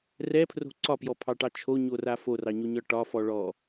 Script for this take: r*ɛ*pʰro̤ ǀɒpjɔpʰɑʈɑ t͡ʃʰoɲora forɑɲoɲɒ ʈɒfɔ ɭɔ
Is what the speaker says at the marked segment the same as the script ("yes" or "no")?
yes